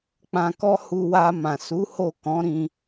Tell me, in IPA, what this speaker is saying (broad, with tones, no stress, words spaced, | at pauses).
k͡pã˧kɔ˦ hu˧wa˧ mã˨su˨˦ ho˦˨ kɔ̃˨˦ ɾĩ˧